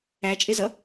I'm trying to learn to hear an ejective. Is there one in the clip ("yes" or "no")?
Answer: yes